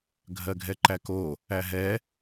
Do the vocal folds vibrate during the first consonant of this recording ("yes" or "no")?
yes